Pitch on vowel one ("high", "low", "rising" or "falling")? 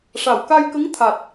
low